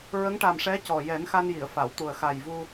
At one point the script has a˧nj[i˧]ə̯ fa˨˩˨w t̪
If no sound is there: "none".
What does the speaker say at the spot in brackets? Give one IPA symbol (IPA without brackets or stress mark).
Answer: i˨˩˨